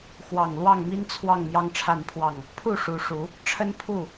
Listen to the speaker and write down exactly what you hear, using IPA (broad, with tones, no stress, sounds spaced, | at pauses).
x w ɑ˨˩ ŋ l w ɑ˥˨ ŋ m i˦ n t͡sʰ w ɑ˥˨ ŋ m j ɑ˦ ŋ ʈ͡ʂʰ a˥˨ n pʰ w ɑ˥˨ ŋ | pʰ u˥˨ ʂ u˨˦ ʂ u˨˦ | ʈ͡ʂʰ ə˦ n pʰ u˥˨